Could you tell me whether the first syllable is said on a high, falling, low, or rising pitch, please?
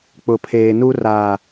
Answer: low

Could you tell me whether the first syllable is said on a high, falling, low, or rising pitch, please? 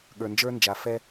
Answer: low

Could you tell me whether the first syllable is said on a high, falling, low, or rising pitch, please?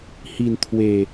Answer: low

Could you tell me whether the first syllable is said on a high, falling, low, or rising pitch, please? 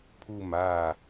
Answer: falling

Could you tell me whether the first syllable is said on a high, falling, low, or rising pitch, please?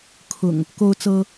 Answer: low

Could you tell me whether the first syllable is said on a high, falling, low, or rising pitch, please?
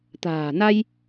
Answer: low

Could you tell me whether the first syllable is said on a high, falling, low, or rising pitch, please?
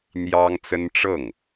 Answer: high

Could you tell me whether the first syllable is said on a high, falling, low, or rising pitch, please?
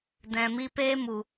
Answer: low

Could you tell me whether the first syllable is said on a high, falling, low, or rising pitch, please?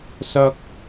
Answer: high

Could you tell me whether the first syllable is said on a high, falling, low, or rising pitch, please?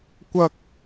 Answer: high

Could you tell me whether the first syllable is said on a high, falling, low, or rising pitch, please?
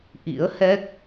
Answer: rising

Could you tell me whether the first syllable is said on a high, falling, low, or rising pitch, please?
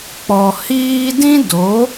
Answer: low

